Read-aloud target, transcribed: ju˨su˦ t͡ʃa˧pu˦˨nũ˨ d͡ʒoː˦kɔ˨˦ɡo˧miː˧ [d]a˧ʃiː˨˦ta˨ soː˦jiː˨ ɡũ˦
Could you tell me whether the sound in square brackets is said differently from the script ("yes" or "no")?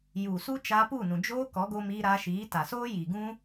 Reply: yes